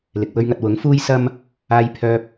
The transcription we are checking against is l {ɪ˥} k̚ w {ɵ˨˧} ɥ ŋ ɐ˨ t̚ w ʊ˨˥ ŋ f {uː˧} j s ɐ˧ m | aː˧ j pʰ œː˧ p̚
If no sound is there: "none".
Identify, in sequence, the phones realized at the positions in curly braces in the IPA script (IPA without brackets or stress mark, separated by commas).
ɪ˨, ɵ˧, uː˧